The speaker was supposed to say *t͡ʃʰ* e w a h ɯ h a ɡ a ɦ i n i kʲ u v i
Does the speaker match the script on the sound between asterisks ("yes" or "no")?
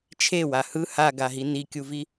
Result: yes